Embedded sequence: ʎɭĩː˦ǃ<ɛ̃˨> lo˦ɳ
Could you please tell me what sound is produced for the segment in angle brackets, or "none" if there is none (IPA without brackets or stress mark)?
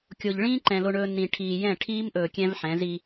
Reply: ɛ̃˨